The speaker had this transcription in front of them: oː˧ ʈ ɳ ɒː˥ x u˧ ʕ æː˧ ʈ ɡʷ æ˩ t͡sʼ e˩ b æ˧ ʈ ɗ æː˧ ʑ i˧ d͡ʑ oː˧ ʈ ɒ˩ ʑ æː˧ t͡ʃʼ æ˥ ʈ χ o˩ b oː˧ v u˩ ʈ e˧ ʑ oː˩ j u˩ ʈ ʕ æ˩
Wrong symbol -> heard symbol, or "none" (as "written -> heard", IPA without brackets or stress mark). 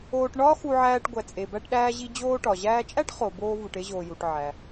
none